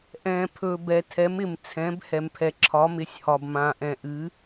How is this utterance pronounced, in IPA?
ʔ ɛ̃ː˧ pʰ ɵː˧ b ɛ˧ tʰ ɛ˧˥ m ɪ˧ m t͡sʰ ɛ̃˧˥ b h ɛ˧ m pʰ ɛ˧ ǁʰ ɒ˧˥ m ɪ˧˥ sʲ h ɒ˧ b m ãː˧ ʔ ɛ̃˧ ʔ ɨ˧˥

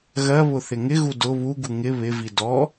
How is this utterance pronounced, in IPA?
ɣ ɜ β ʊ θ ɪ ŋ ɪ ɣ u d ʊ β u ɡ u ŋ ɪ β ɪ v i d ɔ

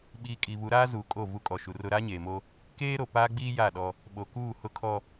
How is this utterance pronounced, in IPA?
ɓ iː˨ kʼ i˨ β u˨˦ ɾ aː˦ z uː˨ kʼ o˦˨ v u˦ kʼ ɔ˨ ʃ u˨ r ʊ˦ ɾ aː˦ ɲ eː˨ m o˦ | k eː˦ ɾ o˨ p aː˦ ɡ͡b iː˦ j a˦˨ ɗ ɔ˦ | ɓ o˨ k uː˦˨ h ʊ˦ kʰ ɔ˦

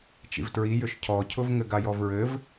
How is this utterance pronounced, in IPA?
t͡ʃ ḭ v t ɹ i j ʏ ʃ cʰ ɔ cʰ ʊ v ŋ ɘ ɡ a j ɔ v ɹ ɘ v

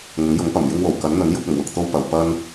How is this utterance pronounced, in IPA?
ŋ ʊ˨˥ ŋ j ʊ˨˥ ŋ p ɐ˨˩ m j ɪ˧ ŋ w o˨˩ w k ɐ˨˥ n n̪ ɵ˨˥ n j ʊ˧ k̚ ʊ˨˩ ŋ w ʊ˨ k̚ t̪ o˧ w p ɐ˨˧ w p ɐ˥ n

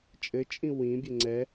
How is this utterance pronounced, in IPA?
t͡ʃʼ ɘ t͡ʃʼ ĩ w ĩ bʲ ɘ ŋ͡ǀ ɛ

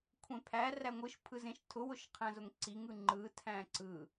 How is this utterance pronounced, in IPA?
kʷʰ ẽ pʰ æ r æ ŋʷ ɯ ʃ pʰ ɯ z ẽ ʃ tʰ ʊ w ʊ ʃ qʰ æ̃ z ʊ ŋ ǀ i ŋ ɯ ŋ͡ǃ ɯ tʰ æ̃ ǀ ɯ

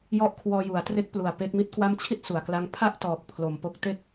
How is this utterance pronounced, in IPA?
j ɔ˦˥ ʔ kʰ w ɔː˧ j u˩˦ a̯ t r e˦˥ k̚ p l u˨˩ a̯ p e˦˥ k̚ m i˥˩ t̚ k w a˥˩ m t͡ɕʰ i˥˩ t̚ s u˨˩ a̯ k l a˦˥ ŋ pʰ a˥˩ ʔ t ɔː˨˩ k̚ pʰ l o˨˩ m p o˦˥ k̚ t e˥˩ k̚

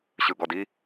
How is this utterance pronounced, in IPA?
ɕ ɯ ɡ ɔ d i

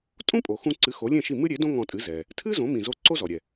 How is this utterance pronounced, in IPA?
tʼ ũ˥ pʼ o˩ x ũ˧ ǀ ɨ˩˥ x o˩˥ lʲ ẽ˥˩ ʃ i˥˩ m ɨ˥ ɾʲ e˩˥ d õ˥ ŋ ɔ̃˧ tʼ ɨ˩˥ z ɛ˩ | tʰ ɨ˥ z õ˩˥ m ĩ˩ z o˧ ǀ o˥ z ɔ˩ ɾʲ ɛ˩

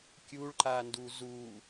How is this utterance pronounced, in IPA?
kʲ u ɭ ǃ a n d u z u

